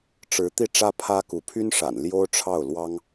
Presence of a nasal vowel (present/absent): absent